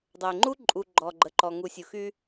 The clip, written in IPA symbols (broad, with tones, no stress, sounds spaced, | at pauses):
dˤ ə˨ ɪ̯ ŋ͡ǃ u˦ ǃʼ u˨ ɡ͡ǃ ɔ˨ ɡ͡ǃ ə˨ ǃ ɔ˨ ŋ u˨ sʲ u˨ x y˦